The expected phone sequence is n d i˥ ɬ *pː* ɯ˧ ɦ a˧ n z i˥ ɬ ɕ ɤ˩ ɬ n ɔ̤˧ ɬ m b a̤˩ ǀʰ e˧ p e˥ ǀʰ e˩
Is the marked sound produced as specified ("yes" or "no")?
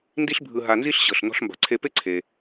no